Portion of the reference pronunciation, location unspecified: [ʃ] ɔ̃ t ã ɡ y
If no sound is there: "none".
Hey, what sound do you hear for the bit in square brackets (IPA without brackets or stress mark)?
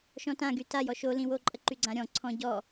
ʃ